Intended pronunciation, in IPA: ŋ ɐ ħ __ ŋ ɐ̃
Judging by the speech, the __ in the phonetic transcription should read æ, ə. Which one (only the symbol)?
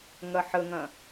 ə